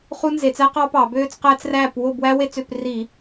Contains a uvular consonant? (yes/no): yes